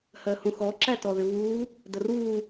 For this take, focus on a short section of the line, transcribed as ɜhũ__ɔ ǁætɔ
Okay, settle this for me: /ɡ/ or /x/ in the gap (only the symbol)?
x